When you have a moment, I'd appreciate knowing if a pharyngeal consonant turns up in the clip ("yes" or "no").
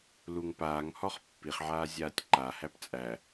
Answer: yes